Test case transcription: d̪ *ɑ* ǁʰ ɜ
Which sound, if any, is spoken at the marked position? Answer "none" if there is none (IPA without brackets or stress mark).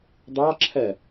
ɑ